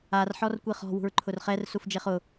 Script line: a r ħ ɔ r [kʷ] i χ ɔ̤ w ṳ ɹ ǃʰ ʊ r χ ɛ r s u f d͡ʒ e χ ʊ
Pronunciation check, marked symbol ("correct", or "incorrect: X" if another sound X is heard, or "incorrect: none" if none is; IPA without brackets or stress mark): correct